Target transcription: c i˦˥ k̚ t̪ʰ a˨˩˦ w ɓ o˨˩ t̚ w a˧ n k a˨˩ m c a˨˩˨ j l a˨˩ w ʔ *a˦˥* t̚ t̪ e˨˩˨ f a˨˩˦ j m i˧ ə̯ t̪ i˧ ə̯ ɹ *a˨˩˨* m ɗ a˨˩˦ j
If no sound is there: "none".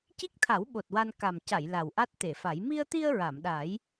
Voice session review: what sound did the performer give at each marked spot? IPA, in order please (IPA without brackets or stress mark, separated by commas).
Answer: a˦˥, a˨˩˨